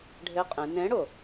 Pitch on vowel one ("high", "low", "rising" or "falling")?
rising